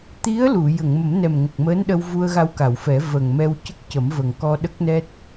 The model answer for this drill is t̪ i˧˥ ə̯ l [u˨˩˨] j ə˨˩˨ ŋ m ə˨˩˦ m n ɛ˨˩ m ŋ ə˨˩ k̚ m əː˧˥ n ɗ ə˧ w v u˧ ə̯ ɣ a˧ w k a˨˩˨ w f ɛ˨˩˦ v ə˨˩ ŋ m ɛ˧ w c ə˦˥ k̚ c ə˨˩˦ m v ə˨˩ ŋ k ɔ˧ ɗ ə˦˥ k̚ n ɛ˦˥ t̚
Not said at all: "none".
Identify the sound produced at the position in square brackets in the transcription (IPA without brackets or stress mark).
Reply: u˨˩˨